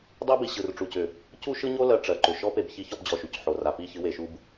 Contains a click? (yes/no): yes